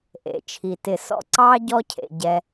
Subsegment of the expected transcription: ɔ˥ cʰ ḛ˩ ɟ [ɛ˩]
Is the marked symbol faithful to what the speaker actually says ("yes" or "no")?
yes